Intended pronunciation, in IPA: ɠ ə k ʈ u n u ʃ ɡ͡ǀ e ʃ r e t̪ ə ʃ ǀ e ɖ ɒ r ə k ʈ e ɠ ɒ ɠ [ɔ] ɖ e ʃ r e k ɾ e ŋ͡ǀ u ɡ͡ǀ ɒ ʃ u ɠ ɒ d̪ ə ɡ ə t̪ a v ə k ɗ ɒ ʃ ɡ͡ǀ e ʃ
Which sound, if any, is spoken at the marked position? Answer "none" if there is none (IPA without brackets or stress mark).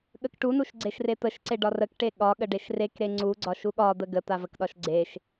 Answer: ə